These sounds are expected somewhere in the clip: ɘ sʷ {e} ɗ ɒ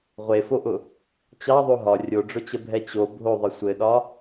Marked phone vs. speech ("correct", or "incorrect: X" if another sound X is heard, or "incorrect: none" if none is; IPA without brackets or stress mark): incorrect: ɘ